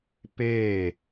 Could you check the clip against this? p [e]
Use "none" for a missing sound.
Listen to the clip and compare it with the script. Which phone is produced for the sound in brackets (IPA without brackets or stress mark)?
eː